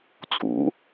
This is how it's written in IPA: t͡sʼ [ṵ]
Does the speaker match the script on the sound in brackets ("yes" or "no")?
yes